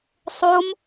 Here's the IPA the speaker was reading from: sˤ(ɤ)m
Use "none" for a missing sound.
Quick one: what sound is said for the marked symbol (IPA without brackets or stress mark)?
o